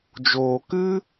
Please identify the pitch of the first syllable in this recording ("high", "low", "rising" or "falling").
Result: low